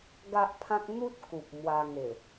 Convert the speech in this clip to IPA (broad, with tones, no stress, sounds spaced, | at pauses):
ɡ a˦ ʔ pʰ ã˦ k̚ n̪ u˦ t̚ k u˨ p̚ m w a˧ ŋ e˨˩